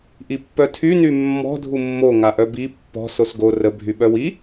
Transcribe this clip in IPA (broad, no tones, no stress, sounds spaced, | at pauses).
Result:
ʔ i pː œ tʰ y n y mː ɔ̤ dʱ u mː o ŋ a ʔ œ b i pː ɔ̤ s o s ɡ o r ə bʱ y ɓ œ w i